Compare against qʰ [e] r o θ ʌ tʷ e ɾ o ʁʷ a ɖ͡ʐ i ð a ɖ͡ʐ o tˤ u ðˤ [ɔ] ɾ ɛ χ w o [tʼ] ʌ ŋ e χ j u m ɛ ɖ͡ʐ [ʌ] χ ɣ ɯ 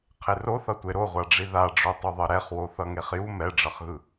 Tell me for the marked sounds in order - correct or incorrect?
correct, incorrect, incorrect, correct

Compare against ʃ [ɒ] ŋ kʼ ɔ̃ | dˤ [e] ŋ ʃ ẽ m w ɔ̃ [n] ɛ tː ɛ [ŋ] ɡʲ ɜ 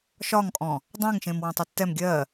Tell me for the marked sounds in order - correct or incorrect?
correct, incorrect, incorrect, incorrect

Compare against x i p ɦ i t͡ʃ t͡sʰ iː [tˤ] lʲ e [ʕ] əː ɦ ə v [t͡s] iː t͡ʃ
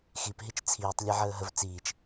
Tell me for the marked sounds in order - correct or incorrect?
correct, correct, correct

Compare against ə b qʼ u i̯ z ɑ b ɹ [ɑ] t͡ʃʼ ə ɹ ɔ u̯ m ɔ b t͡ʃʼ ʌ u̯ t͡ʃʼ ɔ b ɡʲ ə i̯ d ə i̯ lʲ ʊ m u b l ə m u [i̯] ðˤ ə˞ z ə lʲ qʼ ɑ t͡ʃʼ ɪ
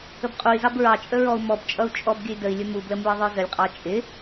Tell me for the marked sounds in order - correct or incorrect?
correct, correct

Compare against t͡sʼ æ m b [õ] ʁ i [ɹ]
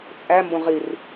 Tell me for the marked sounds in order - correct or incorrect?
correct, incorrect

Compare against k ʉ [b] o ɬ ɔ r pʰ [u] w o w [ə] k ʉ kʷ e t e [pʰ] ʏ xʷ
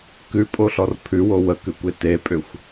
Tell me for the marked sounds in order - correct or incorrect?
incorrect, incorrect, correct, incorrect

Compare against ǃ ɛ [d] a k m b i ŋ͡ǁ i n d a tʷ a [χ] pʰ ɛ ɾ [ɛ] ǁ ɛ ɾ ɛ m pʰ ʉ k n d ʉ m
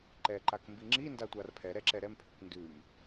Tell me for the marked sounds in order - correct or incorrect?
incorrect, incorrect, correct

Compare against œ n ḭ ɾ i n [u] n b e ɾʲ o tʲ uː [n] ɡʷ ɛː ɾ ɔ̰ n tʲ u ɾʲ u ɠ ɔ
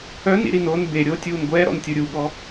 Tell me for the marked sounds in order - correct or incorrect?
incorrect, correct

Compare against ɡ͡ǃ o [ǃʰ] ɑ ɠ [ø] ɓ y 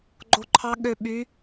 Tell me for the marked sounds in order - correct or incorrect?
correct, correct

